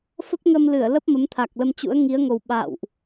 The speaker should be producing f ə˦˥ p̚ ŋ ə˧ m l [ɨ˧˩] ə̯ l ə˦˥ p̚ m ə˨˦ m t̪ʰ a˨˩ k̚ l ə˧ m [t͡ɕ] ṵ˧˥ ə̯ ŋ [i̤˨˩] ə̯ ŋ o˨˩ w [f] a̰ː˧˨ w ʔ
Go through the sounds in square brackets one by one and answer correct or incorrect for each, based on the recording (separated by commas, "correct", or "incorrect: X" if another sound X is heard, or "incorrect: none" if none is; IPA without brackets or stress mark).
correct, correct, incorrect: i˨˦, incorrect: ɓ